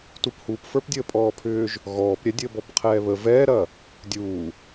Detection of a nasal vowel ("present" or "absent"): absent